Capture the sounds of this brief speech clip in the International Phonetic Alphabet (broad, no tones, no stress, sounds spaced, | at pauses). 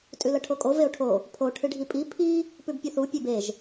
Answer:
tʼ ʉ l ɐ ʈʰ o kʼ o v e o̯ ʈʰ o | pʰ o ʈʰ ɨ ɖʱ i pʼ i pʰ i | p ʉ b pʲ ɨ θ u pʲ e b e ʒ